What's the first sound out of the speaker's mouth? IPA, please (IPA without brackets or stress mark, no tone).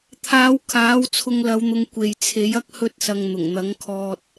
t̪ʰ